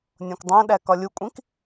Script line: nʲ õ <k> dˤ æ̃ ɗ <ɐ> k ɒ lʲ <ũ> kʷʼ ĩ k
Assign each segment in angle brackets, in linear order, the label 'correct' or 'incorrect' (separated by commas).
correct, incorrect, incorrect